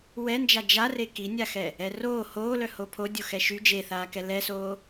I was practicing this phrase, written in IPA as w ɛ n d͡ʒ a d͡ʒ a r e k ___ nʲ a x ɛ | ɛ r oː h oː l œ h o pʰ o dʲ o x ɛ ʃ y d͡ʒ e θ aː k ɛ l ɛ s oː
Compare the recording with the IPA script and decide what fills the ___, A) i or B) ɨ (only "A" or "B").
A